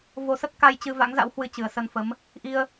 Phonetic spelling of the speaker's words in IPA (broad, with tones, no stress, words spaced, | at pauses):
vo˧sə˦˥t̚ka˧jt͡ɕɨ˧ va̰˧˥ŋza̰˧˥whwɨ˧ t͡ɕɨ˨˩ə̯sə˧nfə˨˦m | ʔi˧ə̯